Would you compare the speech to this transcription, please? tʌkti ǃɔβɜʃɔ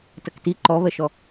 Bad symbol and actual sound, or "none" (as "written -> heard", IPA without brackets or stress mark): none